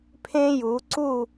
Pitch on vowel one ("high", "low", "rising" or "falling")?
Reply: high